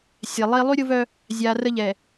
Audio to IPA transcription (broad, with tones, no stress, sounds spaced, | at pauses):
sʲ ɛ˨ lˠ i˦ lˠ y˦ ɾʲ ʊ˦ v œ˦ | zʲ a˨ r ə˦ ʎ ɛ˨